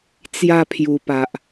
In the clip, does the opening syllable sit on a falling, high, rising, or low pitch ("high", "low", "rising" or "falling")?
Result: falling